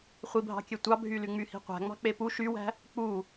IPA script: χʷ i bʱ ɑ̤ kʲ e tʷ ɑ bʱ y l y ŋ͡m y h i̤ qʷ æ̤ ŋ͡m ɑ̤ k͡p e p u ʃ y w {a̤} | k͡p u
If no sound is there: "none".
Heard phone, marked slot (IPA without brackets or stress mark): æ̤